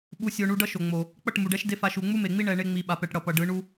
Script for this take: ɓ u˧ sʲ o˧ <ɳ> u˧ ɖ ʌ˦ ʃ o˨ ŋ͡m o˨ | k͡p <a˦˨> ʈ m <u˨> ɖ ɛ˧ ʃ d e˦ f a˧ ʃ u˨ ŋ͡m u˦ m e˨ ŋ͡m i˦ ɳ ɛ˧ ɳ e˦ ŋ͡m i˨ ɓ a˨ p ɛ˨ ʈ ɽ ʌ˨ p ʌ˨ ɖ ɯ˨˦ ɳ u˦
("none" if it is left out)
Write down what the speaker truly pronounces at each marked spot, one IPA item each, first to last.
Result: ɳ, ʌ˦˨, u˨

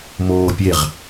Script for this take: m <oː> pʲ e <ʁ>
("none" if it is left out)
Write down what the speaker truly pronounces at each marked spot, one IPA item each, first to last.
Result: oː, ʁ

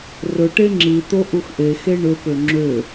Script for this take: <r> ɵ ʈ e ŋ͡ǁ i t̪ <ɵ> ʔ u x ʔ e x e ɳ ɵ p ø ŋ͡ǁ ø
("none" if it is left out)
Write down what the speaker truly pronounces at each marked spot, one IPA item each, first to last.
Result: r, o

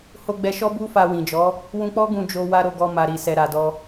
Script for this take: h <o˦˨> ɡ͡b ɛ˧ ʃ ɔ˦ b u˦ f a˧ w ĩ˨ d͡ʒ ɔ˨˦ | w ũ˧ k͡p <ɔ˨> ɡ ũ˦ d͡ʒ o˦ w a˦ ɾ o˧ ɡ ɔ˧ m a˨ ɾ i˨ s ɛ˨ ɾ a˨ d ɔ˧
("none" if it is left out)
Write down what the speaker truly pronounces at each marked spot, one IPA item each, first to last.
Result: o˧, ɔ˦

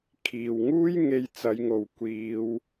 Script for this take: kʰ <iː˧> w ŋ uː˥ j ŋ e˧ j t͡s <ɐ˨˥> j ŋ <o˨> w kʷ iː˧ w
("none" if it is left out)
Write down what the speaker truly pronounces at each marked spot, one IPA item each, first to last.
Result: iː˨, ɐ˨˧, o˨

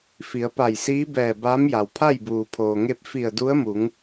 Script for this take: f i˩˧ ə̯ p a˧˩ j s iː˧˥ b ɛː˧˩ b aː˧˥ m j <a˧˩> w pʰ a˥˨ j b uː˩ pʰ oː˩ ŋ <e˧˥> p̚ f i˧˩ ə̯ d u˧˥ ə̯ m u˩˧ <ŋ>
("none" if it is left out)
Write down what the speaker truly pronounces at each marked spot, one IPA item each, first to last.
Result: a˩, e˧, ŋ

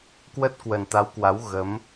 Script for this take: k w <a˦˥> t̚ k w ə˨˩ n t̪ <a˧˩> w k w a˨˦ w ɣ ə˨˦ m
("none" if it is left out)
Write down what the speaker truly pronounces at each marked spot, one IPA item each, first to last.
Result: ə˦˥, a˨˦

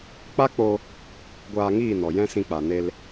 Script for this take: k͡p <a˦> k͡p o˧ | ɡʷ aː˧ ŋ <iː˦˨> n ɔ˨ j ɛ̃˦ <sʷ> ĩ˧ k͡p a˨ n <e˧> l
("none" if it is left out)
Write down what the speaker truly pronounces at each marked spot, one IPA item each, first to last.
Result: a˦, iː˦˨, s, e˧

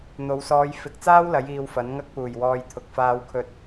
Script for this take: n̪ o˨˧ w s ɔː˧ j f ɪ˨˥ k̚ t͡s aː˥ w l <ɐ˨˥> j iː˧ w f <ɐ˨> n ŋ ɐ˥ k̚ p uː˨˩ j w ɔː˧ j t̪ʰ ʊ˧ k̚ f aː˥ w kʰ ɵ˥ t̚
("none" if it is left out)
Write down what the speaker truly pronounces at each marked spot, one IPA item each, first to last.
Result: ɐ˨˥, ɐ˨˥

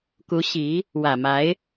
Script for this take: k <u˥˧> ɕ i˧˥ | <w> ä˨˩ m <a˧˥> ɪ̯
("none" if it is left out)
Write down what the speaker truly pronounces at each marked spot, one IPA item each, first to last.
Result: u˧˥, w, a˧˥

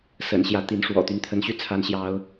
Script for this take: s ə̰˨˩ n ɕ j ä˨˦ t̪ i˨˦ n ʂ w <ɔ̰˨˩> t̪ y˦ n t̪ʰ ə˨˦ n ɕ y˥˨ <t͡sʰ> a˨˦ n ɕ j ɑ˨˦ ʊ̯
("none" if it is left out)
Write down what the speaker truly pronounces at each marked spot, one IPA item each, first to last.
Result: ɔ̰˨˩, t͡sʰ

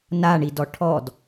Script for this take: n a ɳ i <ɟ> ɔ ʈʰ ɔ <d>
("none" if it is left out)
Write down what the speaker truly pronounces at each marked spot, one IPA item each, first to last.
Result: d, d

